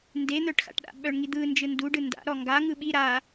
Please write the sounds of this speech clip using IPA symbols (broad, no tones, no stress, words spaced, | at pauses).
nden̪œʈxa̰ʈɗa̰ ɓœɳŋid̪ɯ nd͡ʒɯnduɖɯ nda̰ɾɔ ŋɡa ŋɯɓi ɾa